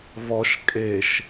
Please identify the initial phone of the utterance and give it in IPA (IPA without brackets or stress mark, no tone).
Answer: β